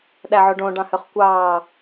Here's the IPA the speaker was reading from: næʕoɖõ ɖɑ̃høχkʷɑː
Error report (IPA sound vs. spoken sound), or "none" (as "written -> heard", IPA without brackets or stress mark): n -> ɗ